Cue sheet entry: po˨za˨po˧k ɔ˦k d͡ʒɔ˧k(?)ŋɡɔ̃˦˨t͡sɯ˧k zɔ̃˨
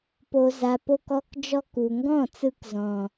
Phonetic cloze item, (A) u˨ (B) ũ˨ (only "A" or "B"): A